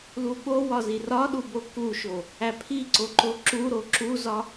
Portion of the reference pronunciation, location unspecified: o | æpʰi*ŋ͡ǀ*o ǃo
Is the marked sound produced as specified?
no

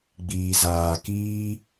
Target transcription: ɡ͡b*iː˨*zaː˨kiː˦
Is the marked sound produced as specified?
yes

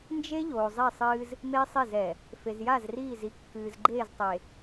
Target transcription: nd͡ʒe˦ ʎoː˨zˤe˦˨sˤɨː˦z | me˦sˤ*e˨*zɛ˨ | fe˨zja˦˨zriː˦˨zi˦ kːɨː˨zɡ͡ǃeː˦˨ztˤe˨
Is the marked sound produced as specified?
no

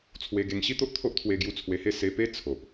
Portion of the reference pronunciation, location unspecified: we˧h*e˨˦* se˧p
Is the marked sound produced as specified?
no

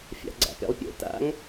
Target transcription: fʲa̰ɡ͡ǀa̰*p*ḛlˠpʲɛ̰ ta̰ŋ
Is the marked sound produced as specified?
yes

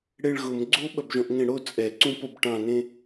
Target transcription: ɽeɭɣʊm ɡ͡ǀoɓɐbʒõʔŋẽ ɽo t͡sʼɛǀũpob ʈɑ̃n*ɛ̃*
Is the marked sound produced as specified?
no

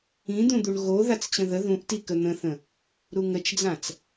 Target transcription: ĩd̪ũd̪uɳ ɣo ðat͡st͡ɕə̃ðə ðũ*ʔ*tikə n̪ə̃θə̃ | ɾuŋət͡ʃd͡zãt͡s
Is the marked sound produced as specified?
yes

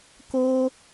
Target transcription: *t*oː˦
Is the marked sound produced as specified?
no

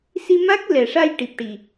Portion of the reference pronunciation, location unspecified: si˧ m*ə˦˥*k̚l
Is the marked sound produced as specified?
no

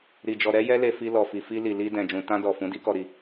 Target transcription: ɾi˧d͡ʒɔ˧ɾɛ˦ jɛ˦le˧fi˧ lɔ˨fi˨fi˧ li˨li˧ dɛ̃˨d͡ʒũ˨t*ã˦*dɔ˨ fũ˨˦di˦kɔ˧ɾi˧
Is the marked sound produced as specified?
no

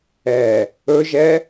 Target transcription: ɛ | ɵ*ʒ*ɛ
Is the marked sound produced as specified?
yes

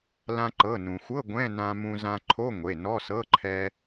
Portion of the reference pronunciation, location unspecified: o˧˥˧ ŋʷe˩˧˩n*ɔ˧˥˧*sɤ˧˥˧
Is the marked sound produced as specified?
yes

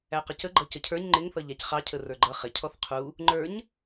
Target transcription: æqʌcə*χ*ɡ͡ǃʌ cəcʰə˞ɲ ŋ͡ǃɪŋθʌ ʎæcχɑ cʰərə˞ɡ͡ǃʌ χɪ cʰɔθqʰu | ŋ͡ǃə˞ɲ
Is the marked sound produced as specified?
no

